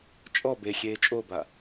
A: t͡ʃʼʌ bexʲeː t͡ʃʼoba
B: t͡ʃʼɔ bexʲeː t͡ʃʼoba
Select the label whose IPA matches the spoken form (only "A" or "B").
B